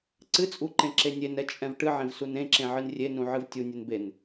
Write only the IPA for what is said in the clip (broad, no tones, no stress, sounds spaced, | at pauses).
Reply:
ǀ ɨ t͡sʼ u ǃ ẽ ǁ e nʲ e n ɛ t͡ʃʼ ɛ̃ v ʈ ɨ ʕ ẽ v s u n ẽ ǁ ẽ ʕ ɨ n rʲ e n ũ ʕ ɨ v tʲ u nʲ e n b e n